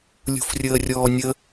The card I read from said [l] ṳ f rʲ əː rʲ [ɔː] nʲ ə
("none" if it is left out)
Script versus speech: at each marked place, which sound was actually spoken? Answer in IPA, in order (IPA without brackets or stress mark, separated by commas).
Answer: lʲ, ɔː